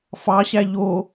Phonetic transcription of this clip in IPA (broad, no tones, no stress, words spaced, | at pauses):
fɑɕæ ʎo